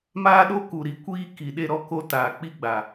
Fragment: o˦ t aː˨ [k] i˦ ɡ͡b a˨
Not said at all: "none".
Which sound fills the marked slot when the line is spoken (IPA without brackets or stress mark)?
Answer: k͡p